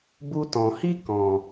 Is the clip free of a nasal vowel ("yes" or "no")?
no